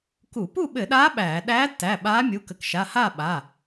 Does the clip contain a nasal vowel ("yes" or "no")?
no